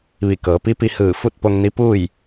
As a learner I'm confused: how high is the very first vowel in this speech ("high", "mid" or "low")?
high